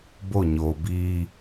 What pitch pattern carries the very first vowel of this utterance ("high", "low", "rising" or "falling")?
falling